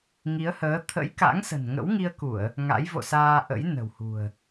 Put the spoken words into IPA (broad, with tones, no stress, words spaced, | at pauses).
ŋi˨˦ə̯həː˨˦ t̪ʰə̰˧˥jka̰˧˥ŋsə̤˨˩n ŋə̰˧˥wŋi˧ə̯ku˧˩˨ə̯ | ŋa̰˧˥jvo̰˧˨saː˧ ʔə̰˧˥j nə̤˨˩whṳ˨˩ə̯